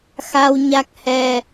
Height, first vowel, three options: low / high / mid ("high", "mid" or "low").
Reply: low